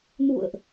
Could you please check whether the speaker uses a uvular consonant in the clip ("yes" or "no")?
no